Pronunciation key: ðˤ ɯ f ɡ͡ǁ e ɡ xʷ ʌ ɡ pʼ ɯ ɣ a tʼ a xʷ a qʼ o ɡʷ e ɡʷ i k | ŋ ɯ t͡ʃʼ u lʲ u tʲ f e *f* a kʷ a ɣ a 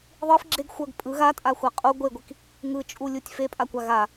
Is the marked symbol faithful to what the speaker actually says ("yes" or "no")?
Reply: no